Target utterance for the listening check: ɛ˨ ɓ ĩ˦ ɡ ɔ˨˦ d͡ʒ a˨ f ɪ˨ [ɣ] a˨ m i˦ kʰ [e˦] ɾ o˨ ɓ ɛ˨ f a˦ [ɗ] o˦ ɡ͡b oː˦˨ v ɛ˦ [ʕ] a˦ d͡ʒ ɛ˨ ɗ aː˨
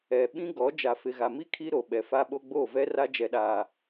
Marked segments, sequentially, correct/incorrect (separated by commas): correct, incorrect, incorrect, incorrect